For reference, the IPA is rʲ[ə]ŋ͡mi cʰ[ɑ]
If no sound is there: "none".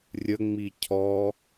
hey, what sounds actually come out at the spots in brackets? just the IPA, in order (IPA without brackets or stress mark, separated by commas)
ə, ɔ